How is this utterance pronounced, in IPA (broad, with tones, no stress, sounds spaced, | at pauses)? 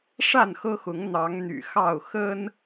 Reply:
ʂ a˥˨ n x ɤ˦ x ʊ˨˦ ŋ n̪ ɑ˨˦ ŋ n̪ y̰˨˩ x ɑ˥˨ ʊ̯ x ə˦ n